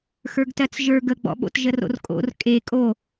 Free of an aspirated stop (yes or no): yes